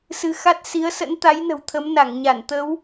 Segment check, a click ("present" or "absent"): absent